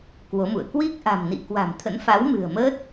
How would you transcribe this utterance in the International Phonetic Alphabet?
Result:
k w o˨˦ m ṵ˧˨ ə̯ k w i˦˥ k̚ ʔ a̤˨˩ m n ḭ˧˨ k w a̤˨˩ m t̪ʰ ə̰˧˥ n f a˨˦ w m ɨ̤˨˩ ə̯ m əː˦˥ t̚

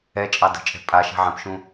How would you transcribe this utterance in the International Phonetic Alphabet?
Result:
ɛ t͡ʃʼ ɑ d ə̤ t͡ʃʼ ɛ̤ pʼ a ʃ ɛ̤ ʕ ɛ̃ p ʃ ũ

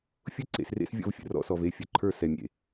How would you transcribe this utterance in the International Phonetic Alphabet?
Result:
fʲ ʊ˦ ǀ ḛ˨ s r ḛ˦ s vʲ ɔ̰˦ v fʲ ə̰˨ r ɔ̰˦ s ɔ˨ v e˦˨ fʲ ə˨ ǃʰ ə˞˦ s ɛ˨ mʲ ḛ˨

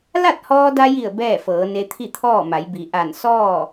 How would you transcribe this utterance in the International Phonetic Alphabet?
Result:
l a˥˨ t̚ h ɔː˧ d a˧ j i˧˩ ə̯ b ɛː˥˨ f ɤː˩˧ n e˧ t̪ʰ i˥˨ t̪ʰ ɔː˥˨ m a˩˧ j b i˩ ʔ a˧˩ n s ɔː˥˨

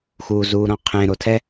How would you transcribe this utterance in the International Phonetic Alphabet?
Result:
x uː z uː ɾ ɔ̃ qʰ ẽ ɾ o tʰ ɛ

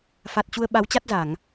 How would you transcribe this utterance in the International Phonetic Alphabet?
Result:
f a˨˩ t̚ t͡ɕ u˧ ə̯ ɓ a˨˦ w t͡ɕ a˦˥ t̚ z a˧˩˨ ŋ

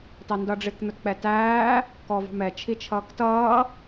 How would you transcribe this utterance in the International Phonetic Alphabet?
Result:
t ɑ n d ʌ ɖ͡ʐ ɪ k n̪ ʊ t k͡p ɛ t æː | k ɔ v ɑ̤ m ɛ t͡ʃʰ i t͡ʃʰ ʌː k t ʌː

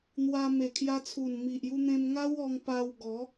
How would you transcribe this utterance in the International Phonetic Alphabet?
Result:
n̪ w a˧ m e˨˩ kʰ j a˧ t͡sʰ u˨˩ n m i˨ ʔ j u˧ n̪ ẽ˧ m ŋ a˦ w ɔ˧ ŋ p a˧ w ɡ ɔ˨˦

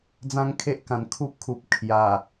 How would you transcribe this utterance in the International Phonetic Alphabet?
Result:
d͡z ã˦ ŋ kʰ e˦ ʔ k ã˨˩ n kʰ u˦ p̚ kʰ u˨ p̚ kʰ j a˨˩

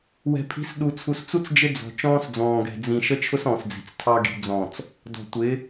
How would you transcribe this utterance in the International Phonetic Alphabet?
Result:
w ɛ̤˨ pʰ i̤˨˦ s ɗ u˨ t͡sʰ u˨ s t͡s u˦ t͡s d͡ʒ ɪ˦ d͡z ɔ̤˨ t͡ʃ ɔ̃ː˦ s d͡z ɔ̃ː˨ ɡ ɛ̤˨ d͡z ĩ˨ ʃ ə˦ t͡ʃʰ ʊ˦ s ɔ̃ː˨ s d͡z i̤˨ t͡s tʰ ɑ˦ ɡ i̤˨ d͡z ɔ̃˨ t͡s | d ɔ̤˨ tʷ ɪ˨˦

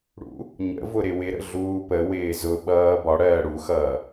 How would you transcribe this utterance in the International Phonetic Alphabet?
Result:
ɽ ṵ | ɲ ə̰ v ʊ ɾ ɪ w ɪ ɾ ə̰ ɮ uː p ə w ɪː z ʊ ɓ ʌː b ɒ ɽ ɜː ɽ u x ʌː

